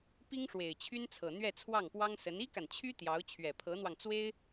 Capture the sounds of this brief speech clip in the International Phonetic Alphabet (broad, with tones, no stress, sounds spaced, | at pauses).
p i˥ ŋ ʂ w e˨˩ ɪ̯ t͡ɕʰ y˥ n t͡sʰ ɤ˨˩ n̪ ɥ ɛ˥˧ t͡sʰ w ɑ˥˩ ŋ p w ɑ˥ ŋ s ə˧˥ n i˥ k a˨ n t͡ɕʰ y˥ t̪ j ɑ˧˥ ʊ̯ t͡ɕʰ ɥ ɛ˨˩ pʰ ɤ˧˥ n̪ w ɑ˧ ŋ t͡s w e˥ ɪ̯